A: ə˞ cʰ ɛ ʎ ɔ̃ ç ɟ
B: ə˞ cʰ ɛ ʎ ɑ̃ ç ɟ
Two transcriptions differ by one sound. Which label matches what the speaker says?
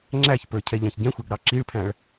B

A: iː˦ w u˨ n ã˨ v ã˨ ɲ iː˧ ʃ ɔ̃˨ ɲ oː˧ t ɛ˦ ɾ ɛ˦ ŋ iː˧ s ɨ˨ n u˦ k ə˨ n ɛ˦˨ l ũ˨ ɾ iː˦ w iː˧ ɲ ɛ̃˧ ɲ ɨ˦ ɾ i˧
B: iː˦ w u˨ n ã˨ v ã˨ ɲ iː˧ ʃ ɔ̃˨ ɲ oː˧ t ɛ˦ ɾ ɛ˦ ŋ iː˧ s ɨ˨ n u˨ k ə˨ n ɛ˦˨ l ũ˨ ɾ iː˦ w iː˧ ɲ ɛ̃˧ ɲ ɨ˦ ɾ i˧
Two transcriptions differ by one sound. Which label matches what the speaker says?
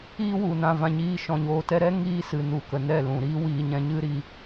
B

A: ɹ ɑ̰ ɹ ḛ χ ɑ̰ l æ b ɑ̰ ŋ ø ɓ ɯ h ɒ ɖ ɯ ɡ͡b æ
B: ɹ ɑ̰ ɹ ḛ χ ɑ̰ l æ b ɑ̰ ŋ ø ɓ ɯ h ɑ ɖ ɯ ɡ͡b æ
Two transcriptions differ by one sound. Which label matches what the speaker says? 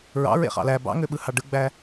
B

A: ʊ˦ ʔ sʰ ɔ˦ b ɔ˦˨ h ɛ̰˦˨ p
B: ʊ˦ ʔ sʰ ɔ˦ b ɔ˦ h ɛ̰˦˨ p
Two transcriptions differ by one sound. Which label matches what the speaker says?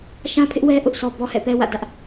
B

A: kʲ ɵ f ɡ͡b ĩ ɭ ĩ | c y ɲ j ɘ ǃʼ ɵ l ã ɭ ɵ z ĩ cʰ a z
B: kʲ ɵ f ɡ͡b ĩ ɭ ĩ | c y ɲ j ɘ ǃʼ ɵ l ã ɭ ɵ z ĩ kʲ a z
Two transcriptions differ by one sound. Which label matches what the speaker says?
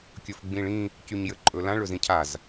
A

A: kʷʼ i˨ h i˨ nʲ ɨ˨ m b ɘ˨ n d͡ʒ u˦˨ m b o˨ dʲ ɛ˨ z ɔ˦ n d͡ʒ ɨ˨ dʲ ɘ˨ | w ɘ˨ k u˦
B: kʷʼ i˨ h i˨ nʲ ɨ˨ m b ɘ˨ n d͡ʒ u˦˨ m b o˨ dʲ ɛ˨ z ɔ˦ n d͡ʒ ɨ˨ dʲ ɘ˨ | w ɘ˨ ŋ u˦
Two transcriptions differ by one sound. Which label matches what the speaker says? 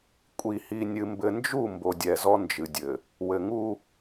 B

